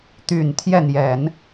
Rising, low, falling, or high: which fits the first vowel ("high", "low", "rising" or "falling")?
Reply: low